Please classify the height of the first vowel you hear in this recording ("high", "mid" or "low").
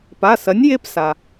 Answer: low